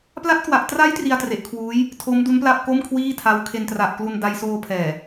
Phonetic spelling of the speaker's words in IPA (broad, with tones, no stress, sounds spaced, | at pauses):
p l a˦˥ t̚ k w a˨˩ ʔ t r a˦˥ j t r i˧ a̯ t r e˨˩ ʔ kʰ w uː˦˥ j | tʰ o˦˥ m d u˦˥ n p l a˥˩ p̚ k o˥˩ m kʰ w iː˥˩ tʰ a˦˥ w kʰ e˧ n t r a˨˩ ʔ k l u˧ n d a˧ j s oː˧ pʰ ɛː˨˩